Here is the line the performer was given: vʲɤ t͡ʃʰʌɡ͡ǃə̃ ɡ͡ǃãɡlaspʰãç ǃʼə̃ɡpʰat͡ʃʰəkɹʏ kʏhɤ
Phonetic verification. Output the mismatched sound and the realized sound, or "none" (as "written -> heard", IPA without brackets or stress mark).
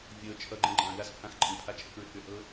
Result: ç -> x